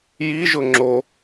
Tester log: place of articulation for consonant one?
palatal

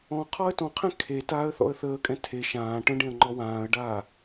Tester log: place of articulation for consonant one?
uvular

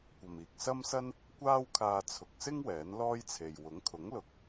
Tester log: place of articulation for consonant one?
velar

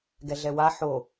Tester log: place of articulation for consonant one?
velar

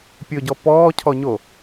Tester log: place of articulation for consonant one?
labial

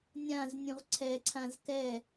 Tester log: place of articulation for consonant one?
alveolar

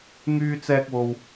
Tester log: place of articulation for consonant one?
velar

